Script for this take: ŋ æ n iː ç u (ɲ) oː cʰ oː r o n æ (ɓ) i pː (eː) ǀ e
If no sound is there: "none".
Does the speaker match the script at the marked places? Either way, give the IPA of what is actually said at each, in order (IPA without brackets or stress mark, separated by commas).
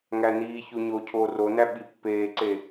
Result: ɲ, ɓ, eː